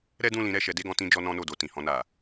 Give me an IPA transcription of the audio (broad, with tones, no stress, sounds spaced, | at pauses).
ɾ ɛ˦ d ũ˦˨ l ĩ˨˦ ɾ ɛ˦˨ ʃ ɛ˨˦ d e˦˨ ɡ ɔ̃˧ t ĩ˧ d͡ʒ ɔ˧ n ɔ̃˧ n o˨ d o˨ t ĩ˨ h ɔ̃˧ n a˨